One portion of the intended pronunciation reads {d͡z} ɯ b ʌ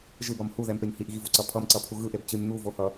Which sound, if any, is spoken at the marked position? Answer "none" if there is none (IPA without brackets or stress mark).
ʒ